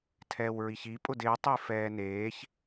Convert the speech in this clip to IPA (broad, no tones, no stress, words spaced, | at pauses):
tʰɛːwɹiçi pʼʊdɪː tˤifɛːneːç